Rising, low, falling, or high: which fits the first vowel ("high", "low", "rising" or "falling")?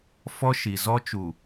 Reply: high